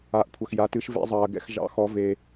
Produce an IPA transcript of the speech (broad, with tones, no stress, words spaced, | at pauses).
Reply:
a˩˧ʔkʷʰɐ˩x ja˩˧tɨ˩˧ʃvɛ̰˩˧zˤɐː˩ ɡɛ̰˩x ʒɑ̰˩˧xɔ˩˧ ve˩